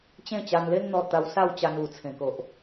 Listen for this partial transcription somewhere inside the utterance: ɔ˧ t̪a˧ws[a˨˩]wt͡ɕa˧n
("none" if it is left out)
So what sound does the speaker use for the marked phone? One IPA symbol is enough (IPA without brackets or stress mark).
a˥˧